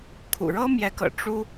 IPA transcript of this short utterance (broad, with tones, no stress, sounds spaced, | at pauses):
kʰ ṵ˨˩ ɻ ɤ˥ m j ɛ˧˥ k ɤ̰˨˩ ʈ͡ʂ u˥